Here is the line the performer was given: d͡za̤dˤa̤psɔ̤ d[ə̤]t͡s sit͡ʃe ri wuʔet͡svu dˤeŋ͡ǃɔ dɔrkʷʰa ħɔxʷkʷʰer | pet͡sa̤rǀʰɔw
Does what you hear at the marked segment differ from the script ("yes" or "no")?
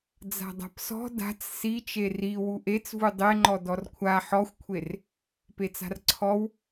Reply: yes